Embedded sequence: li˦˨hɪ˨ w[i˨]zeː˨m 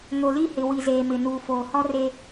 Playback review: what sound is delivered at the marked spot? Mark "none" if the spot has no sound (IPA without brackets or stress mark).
i˨